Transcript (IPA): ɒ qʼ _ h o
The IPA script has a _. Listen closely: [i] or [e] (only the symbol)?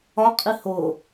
i